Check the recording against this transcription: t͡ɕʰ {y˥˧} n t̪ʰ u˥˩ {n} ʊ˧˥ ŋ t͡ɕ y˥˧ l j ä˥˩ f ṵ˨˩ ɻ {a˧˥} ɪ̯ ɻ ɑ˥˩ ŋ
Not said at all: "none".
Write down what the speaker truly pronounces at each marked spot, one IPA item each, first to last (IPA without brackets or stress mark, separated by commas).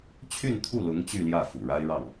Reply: y˥˧, l, a˥